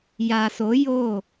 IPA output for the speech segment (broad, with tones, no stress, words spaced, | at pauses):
ja˨so˨˦ jo˦˨